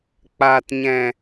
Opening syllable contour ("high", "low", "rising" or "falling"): low